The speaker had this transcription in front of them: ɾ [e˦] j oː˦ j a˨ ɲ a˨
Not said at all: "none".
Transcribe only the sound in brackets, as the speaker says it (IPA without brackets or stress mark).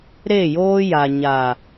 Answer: e˦˨